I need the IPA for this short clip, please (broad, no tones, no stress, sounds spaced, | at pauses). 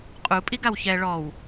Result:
qʼ u pʼ i ɡ a w ç ɛ ɭ ɔ w